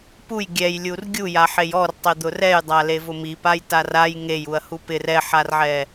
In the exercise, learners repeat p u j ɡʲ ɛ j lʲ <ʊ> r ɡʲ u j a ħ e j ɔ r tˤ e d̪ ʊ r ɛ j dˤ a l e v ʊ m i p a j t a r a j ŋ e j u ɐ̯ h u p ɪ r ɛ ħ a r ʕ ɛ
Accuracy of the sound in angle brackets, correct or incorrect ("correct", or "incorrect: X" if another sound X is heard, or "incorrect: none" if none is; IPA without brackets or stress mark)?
incorrect: u